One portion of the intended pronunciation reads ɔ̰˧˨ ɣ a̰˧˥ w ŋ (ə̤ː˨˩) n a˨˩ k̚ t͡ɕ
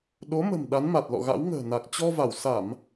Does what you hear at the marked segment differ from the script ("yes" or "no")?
no